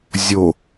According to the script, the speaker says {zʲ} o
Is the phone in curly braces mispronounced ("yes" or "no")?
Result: no